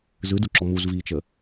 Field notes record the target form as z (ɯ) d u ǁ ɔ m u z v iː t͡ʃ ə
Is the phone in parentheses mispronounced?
no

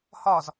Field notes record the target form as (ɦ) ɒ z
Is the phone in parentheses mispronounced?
yes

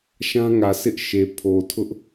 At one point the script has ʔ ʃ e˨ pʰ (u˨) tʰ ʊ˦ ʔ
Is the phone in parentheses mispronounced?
yes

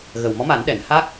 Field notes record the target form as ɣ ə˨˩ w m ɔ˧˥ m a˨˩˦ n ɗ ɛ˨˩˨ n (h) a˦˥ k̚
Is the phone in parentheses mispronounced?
no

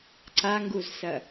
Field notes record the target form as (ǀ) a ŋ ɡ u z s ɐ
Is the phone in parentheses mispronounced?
no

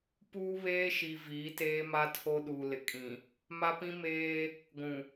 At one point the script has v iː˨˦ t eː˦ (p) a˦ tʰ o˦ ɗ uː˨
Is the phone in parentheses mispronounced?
yes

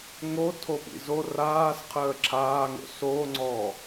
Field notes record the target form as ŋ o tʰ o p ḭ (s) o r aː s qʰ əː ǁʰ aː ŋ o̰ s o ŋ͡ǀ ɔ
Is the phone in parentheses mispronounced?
yes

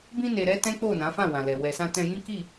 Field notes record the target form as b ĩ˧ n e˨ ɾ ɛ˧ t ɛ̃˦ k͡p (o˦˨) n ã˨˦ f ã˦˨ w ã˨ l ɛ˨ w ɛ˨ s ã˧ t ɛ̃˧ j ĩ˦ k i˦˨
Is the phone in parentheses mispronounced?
no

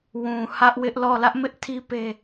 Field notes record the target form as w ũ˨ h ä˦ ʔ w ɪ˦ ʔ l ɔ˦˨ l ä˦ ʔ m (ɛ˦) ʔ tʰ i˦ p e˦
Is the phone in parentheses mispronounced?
yes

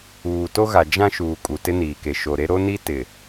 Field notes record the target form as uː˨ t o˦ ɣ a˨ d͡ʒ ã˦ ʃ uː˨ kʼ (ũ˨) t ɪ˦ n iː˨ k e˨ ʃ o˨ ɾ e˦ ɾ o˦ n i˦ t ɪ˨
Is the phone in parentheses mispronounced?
yes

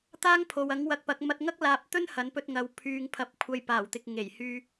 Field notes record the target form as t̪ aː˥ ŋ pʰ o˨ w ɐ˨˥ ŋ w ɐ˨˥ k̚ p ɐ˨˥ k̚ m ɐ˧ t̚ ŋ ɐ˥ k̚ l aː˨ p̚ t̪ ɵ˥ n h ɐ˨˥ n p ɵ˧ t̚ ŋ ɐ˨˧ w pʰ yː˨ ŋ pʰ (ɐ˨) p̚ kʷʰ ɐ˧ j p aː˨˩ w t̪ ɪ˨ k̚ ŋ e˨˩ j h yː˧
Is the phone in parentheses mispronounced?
no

